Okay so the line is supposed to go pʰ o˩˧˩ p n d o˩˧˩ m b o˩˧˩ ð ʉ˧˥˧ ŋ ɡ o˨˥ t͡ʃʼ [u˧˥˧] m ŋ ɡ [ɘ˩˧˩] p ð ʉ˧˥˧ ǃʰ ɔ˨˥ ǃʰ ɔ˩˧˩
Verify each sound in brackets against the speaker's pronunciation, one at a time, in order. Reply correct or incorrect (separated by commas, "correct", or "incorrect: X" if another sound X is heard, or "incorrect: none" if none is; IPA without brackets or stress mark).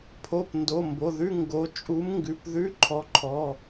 incorrect: u˨˥, incorrect: ʉ˩˧˩